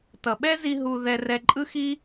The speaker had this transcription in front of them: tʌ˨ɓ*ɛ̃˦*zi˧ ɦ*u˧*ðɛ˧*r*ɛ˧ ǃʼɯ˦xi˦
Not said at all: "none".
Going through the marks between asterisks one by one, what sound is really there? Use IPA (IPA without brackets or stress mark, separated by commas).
ɛ˦, u˧, r